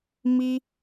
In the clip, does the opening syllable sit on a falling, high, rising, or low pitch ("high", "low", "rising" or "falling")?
high